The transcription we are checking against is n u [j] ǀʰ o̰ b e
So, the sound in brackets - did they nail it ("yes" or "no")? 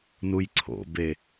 yes